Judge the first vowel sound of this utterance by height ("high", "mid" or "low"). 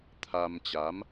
low